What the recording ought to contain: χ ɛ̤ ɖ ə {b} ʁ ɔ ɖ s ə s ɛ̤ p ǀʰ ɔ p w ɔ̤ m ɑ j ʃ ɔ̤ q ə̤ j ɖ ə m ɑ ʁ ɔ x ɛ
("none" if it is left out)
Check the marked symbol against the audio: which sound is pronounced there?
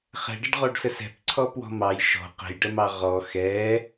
ɖ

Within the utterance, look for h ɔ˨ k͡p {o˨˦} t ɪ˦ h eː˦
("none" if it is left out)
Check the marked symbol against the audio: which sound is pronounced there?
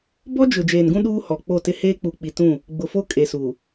o˦˨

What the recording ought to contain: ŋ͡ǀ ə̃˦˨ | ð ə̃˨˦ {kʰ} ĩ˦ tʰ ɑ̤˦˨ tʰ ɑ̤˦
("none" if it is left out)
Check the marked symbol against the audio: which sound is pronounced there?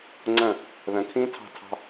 kʰ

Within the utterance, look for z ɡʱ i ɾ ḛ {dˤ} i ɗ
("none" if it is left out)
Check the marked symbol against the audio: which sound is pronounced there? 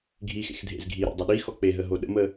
dˤ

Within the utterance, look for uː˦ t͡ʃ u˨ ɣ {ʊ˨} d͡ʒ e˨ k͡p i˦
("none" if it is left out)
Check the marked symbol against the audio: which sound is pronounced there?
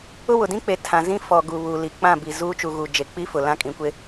u˨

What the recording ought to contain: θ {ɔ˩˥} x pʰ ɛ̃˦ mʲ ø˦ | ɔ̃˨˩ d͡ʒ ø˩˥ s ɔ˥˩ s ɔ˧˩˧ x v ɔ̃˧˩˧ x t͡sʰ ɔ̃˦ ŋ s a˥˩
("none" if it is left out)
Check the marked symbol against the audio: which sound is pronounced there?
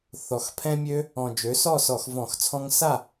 ɔ˨˩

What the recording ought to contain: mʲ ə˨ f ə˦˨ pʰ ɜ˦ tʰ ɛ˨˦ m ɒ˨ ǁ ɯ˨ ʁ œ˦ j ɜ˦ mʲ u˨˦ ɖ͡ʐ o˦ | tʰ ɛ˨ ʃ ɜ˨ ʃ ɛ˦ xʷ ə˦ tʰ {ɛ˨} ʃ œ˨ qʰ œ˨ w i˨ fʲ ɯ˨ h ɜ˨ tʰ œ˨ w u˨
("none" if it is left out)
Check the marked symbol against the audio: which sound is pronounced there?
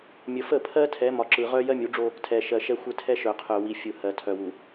ɛ˦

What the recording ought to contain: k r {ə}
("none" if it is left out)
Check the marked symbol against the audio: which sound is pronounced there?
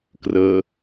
ə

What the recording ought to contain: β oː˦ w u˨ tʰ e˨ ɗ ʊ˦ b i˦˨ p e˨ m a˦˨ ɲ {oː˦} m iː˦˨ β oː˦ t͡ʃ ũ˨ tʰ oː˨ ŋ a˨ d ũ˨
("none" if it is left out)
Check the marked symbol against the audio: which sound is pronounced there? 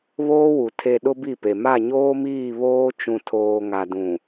oː˦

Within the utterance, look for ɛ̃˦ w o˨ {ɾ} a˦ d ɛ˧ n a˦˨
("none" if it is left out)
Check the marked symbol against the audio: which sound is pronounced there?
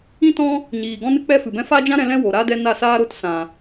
ɾ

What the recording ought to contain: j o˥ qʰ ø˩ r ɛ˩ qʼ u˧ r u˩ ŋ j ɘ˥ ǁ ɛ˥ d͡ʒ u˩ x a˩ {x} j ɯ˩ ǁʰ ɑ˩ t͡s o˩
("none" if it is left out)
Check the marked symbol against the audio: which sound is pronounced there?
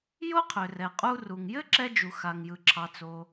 ŋ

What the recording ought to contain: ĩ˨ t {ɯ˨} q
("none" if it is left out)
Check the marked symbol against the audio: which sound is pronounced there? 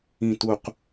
u˨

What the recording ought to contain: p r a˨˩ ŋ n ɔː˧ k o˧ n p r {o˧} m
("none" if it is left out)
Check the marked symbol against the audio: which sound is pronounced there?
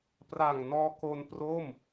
o˥˩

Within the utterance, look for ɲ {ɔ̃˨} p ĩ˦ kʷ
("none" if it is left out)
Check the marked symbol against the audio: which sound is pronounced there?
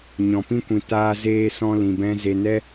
ɔ̃˨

